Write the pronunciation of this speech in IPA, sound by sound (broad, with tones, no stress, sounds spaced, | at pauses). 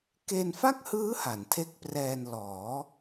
k e˧ n f a˥˩ k̚ h ɯː˦˥ h a˩˦ n tʰ e˦˥ k̚ p r ɛː˧ n l ɔː˩˦